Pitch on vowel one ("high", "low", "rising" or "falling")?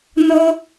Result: high